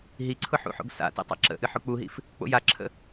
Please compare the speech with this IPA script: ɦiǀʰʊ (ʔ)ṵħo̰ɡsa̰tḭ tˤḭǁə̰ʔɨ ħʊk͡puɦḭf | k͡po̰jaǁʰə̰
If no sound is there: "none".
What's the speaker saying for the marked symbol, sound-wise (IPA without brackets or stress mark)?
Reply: ħ